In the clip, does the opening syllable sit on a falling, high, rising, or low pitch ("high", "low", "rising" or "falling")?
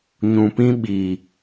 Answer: low